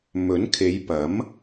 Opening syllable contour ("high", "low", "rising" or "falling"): rising